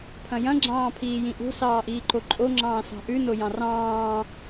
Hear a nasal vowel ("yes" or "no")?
yes